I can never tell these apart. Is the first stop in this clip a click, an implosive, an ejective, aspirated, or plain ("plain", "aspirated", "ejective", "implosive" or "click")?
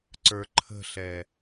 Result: click